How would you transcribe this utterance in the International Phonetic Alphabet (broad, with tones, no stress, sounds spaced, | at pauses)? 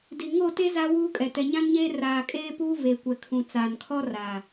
d i˨ ŋ o˦˨ t e˦ z a˦ w uː˦ kʼ ɛ˨ t ɛ˨ ɲ ã˦ n ɲ eː˦ r aː˨ kʼ eː˦ p uː˦ v e˨ kʷ ɛ˨ kʰ ũ˨ t͡s aː˨ n kʰ ɔ˦ r a˨